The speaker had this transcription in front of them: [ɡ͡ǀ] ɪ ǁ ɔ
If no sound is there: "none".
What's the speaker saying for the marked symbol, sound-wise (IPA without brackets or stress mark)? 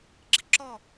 ɡ͡ǁ